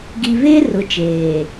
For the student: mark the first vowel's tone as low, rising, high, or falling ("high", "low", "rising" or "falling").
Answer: low